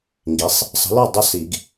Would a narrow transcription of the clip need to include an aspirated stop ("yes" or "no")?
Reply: no